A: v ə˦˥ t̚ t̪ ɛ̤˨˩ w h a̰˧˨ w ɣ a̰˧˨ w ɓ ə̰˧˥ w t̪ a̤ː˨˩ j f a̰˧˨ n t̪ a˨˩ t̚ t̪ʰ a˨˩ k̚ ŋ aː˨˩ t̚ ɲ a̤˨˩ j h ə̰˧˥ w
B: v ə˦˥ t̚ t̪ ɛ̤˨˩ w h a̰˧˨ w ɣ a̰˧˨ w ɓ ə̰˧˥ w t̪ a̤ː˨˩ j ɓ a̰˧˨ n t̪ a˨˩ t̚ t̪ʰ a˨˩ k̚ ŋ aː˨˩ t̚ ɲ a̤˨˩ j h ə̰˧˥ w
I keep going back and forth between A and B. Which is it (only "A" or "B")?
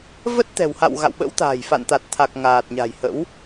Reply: A